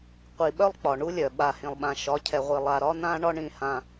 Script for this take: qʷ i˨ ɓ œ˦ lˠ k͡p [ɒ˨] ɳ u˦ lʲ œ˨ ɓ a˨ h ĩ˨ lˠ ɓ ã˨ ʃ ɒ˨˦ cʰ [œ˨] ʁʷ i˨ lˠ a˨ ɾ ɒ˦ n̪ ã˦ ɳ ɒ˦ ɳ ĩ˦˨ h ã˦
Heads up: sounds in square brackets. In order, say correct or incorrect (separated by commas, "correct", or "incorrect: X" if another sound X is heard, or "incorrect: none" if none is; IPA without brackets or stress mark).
correct, incorrect: ɛ˨